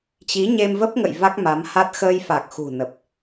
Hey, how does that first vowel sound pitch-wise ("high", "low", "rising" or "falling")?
rising